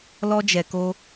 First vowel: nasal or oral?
oral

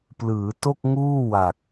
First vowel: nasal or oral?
oral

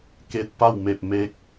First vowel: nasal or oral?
oral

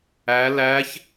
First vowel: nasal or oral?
oral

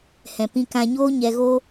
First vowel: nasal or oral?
nasal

